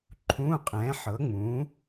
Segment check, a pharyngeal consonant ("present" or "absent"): present